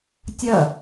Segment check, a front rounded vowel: absent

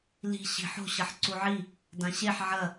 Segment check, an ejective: absent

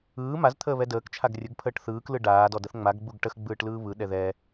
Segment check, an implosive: present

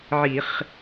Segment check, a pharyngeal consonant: present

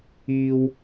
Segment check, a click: absent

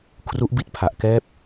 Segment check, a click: absent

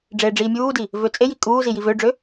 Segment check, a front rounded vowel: present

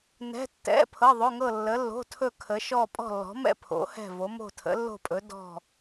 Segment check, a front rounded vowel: absent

